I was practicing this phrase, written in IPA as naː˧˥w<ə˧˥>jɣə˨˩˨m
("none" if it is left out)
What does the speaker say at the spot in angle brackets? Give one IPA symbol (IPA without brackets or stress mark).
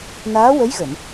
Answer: ə˧˥